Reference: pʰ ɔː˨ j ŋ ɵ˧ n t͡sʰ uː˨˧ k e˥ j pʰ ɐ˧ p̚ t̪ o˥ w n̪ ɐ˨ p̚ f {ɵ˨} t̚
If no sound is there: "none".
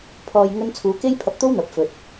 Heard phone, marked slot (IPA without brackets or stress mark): ɵ˨